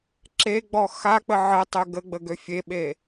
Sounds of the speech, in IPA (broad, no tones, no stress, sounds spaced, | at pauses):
ǁ e ɡ͡b ɔ x a k͡p ə ʕ ə tˤ ø ɡ ə ɡ͡b ə ɡ ø fʲ e ɓ e